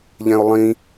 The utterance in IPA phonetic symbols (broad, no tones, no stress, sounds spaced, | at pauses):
ʎ ɛ̃ ʊ̯ lˠ ĩ